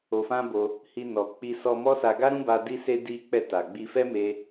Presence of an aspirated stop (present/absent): absent